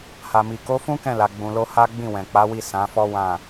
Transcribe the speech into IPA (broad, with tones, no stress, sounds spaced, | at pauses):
h a˨ m i˨ k o˨˦ f ũ˦ k ɛ̃˦˨ l a˨ ɡ͡b ũ˨ l o˧ h a˦ ɡ͡b ĩ˦˨ w ɛ̃˨ k͡p a˨˦ w i˦˨ s ã˨˦ f ɔ˦ w ã˦˨